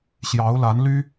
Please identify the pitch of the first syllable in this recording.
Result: rising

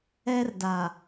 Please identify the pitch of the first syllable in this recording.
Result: high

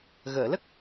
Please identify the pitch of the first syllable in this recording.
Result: low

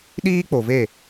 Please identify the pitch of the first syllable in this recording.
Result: high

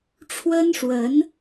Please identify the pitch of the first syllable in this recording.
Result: high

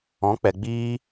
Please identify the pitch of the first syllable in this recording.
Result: rising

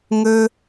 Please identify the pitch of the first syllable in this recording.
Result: high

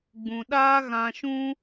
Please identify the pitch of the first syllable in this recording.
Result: low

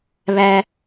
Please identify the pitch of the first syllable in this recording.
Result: low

